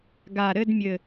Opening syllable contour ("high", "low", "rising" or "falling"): low